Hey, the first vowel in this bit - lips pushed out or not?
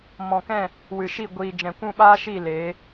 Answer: yes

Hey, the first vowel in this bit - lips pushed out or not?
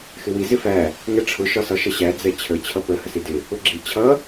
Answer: no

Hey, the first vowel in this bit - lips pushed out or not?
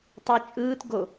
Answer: no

